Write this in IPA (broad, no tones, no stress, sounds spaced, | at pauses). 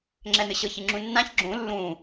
ŋ͡ǁ ɛ n̪ ɨ ɕ ɤ ç ɨ ŋ͡ǁ ũ nː ã ç ɡ͡ǁ ũ lː ũ